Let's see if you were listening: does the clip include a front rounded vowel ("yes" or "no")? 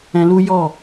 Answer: no